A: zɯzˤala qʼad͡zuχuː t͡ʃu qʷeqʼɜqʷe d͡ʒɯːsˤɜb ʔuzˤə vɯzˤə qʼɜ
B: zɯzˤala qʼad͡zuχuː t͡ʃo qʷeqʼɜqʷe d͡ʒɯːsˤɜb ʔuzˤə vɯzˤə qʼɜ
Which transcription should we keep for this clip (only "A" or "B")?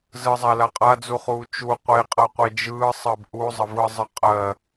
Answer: A